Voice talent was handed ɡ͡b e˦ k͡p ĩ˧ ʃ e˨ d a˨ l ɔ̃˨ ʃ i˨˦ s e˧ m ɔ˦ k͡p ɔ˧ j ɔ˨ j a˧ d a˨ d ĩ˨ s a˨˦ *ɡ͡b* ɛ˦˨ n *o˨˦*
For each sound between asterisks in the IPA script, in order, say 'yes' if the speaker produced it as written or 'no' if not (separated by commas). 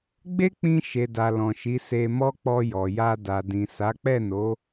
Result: no, yes